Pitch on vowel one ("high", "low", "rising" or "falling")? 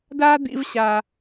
high